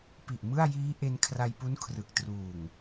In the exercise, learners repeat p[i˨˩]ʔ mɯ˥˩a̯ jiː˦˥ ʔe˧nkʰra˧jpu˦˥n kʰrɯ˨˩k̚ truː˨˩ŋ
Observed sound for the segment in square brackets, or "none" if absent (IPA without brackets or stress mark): i˨˩